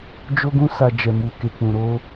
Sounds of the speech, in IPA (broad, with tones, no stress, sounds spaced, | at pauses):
d͡ʒ o˧ ɡ ũ˧ s a˨ d͡ʒ ɛ˨ m u˨ k e˨ k͡p ũ˨ ɾ o˧